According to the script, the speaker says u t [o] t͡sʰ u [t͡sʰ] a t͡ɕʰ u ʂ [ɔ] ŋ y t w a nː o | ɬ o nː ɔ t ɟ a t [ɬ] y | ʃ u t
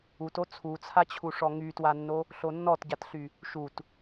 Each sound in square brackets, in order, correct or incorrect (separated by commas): correct, correct, correct, correct